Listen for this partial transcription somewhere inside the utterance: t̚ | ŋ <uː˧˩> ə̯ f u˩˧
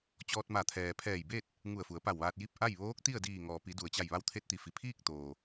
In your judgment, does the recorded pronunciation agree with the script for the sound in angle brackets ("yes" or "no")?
no